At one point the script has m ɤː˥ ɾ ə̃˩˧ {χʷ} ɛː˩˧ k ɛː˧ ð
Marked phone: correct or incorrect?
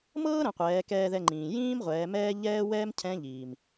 incorrect